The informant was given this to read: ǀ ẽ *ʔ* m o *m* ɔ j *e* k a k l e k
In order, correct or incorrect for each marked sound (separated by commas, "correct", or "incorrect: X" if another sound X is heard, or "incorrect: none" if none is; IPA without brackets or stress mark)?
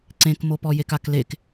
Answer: incorrect: k, incorrect: p, correct